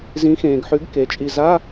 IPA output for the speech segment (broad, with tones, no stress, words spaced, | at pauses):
zĩ˩˧xẽː˩ɡħʉ˩˧ɡ ke˩˧t͡ʃʼi˧˩ za˧˥˧